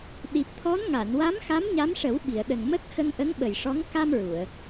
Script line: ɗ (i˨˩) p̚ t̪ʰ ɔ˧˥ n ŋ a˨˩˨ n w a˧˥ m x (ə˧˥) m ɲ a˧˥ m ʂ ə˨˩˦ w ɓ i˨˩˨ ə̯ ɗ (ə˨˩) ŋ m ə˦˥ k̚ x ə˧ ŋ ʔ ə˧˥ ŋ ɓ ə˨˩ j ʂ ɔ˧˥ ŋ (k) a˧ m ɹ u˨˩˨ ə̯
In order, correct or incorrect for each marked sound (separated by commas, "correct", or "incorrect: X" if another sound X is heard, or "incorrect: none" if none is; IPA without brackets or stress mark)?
correct, incorrect: a˧˥, correct, correct